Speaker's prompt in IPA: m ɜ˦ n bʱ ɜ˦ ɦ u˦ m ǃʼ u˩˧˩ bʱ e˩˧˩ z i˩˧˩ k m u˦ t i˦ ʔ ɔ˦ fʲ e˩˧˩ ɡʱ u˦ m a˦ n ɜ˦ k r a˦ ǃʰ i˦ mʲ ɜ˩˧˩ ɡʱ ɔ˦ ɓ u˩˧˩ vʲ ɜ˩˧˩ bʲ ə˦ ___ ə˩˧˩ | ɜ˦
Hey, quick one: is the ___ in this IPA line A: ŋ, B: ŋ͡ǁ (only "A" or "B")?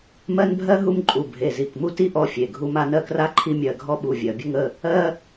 A